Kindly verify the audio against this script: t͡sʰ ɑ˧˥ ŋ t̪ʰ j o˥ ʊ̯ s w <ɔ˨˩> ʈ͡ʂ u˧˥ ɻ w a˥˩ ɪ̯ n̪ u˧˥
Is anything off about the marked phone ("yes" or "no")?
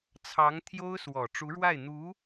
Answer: no